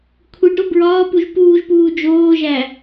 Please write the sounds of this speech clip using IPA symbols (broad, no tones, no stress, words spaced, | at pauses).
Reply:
kʷʰiɖɾo bɹɒːpuʒ puːʒpuː d͡ʒoːʒæ